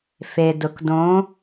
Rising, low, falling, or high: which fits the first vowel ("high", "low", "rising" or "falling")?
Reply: low